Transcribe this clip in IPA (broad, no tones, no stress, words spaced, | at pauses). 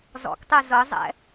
zɔ̰ktˤɛ zɤzˤɛ̰